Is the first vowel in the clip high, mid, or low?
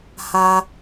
low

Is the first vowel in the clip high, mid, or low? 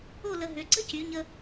mid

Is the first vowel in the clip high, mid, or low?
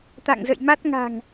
low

